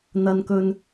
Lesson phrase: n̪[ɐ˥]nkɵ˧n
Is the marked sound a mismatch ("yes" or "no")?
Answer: yes